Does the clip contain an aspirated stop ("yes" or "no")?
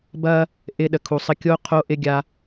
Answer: yes